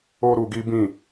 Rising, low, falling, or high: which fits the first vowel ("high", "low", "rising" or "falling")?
high